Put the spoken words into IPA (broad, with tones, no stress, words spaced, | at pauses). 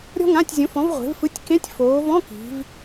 ɾʲɔ̤˥ŋã˧˥˧tʲzʲõ˨˥fɔ̃˨˥v ʁʷe̤˨˥vfɯ˧˥˧tʲ kẽ˧˥˧tʲfoː˩˧vɔ̃˧˥˧ ki̤˩˧v